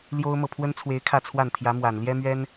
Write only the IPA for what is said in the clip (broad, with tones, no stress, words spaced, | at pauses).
ljo˥ʊ̯mɤ˨ pʰwə˥nt͡sʰwe˧˥ɪ̯ kʰä˥˧t͡sʰwa˥˩nt̪ʰjä˧˥mwa˨˩n ljɛ˥mɥɛ˥n